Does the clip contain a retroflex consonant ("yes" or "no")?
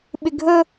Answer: no